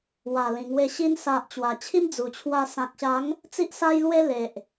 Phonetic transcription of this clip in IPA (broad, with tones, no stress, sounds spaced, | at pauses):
w a˨˩ l ĩ˨˩ ŋ w e˧ ɕ i˧ n s a˨ ʔ t͡ɕ w a˨˩ t͡ɕʰ i˦ m d͡z u˨˩ t͡ɕʰ w a˧ s ã˨ k̚ ɕ a˨˦ ŋ | t͡s i˦ ʔ s a˦ j l w e˦ l e˨ ʔ